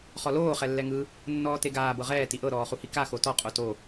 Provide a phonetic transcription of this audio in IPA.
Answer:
χɔloː χɛlːɛŋɯ | nːɔːteɡaː bɤʁɛː tiʔɤ ɾɔːχuhika xotɔ qʼoto

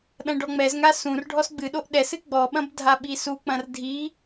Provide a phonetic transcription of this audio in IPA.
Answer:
ɗɐ̃ɖɔŋ͡mɛzŋa sũr ɖʱɔsɡ͡bɨɗoʔ ɗɛsɨ ɡ͡bɔɓɐ̃b dʱaɓisuk͡pɐ̃r dʱi

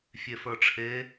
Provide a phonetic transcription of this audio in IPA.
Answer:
fʲefə˞ʈ͡ʂʰe

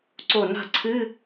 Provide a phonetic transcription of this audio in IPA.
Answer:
ǀo˧˩na̤˥˩ ǀʰɨ˧˥˧

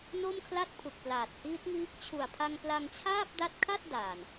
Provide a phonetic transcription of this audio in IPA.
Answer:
no˥˩mkʰla˥˩t̚ pʰu˨˩k̚plaː˨˩t̚hiː˦˥t̚ŋiː˦˥k̚ t͡ɕʰu˨˩a̯pʰa˧ŋ pla˧ŋt͡ɕʰaː˥˩p̚ da˦˥t̚kʰa˥˩t̚ daː˨˩n

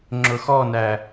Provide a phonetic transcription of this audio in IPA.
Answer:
ŋ͡ǁʊxɔnæ

